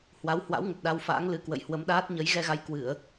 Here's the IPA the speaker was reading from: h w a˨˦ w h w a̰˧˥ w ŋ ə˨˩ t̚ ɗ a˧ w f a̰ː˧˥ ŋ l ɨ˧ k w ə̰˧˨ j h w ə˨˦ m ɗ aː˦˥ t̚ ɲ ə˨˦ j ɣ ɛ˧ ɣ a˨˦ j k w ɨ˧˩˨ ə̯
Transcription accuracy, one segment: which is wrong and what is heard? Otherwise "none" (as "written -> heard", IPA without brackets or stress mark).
none